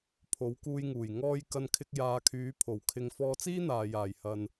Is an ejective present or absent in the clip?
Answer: absent